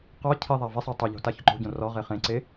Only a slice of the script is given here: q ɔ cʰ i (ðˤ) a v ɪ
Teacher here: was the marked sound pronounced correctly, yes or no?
yes